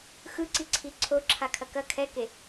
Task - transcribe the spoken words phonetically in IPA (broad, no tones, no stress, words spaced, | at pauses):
xɯǀiǀʰi ǀʰoǁʰakʰɐ kɐ kʰɛke